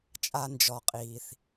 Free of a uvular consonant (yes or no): no